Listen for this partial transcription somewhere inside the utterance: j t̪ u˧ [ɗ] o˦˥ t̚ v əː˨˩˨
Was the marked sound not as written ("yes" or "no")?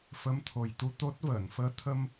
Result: yes